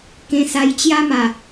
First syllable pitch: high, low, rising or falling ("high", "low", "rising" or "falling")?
high